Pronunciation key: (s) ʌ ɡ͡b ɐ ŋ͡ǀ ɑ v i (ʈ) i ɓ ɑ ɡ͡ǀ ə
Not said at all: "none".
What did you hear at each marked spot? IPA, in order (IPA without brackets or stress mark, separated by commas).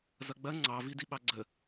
z, d